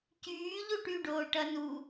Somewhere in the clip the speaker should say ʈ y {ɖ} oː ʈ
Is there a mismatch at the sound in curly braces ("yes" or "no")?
no